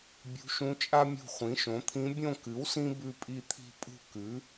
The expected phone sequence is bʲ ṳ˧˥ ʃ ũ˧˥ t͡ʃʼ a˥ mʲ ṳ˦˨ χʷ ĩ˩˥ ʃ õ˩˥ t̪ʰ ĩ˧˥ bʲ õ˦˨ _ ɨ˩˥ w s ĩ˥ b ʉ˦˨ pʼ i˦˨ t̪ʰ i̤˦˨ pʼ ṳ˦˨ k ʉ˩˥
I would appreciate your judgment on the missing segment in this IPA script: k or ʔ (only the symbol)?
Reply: k